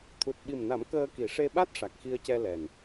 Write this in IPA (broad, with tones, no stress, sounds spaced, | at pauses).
t̪ʰ u˨˩ t̚ ɓ i˨˩ m n a˨˩˦ m k əː˧ k i˨˩˨ ʂ e˧ ɓ a˦˥ t̚ ʂ a˨˩ k̚ x i˧ ə̯ c ɛ˧ l ɛ˨˩ n